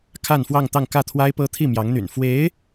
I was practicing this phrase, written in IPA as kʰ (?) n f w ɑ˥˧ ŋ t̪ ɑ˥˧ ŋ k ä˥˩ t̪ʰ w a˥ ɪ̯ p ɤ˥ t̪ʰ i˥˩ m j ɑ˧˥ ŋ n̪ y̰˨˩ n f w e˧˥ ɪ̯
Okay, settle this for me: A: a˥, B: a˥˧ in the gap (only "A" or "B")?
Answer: B